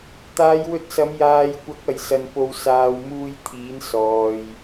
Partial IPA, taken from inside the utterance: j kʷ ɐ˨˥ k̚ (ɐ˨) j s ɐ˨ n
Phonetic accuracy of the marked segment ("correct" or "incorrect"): correct